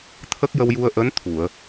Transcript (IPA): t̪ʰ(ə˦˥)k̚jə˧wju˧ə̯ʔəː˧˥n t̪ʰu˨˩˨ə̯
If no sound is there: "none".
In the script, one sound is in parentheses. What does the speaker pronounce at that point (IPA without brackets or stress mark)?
ə˦˥